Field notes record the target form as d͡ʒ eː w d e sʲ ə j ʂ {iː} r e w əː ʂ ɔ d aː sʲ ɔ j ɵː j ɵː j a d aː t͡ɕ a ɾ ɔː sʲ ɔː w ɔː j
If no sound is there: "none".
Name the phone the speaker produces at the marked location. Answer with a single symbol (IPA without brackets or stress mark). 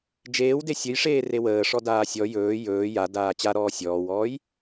eː